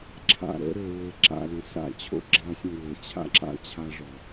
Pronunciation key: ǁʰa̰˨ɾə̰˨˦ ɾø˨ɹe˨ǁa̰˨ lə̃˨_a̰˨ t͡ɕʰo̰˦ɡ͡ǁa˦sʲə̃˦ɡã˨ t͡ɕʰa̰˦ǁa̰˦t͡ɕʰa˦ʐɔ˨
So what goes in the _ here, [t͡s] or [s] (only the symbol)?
s